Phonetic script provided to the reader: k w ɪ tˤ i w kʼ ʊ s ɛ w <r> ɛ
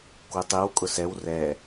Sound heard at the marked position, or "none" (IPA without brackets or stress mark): r